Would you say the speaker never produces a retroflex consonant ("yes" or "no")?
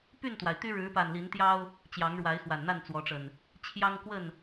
no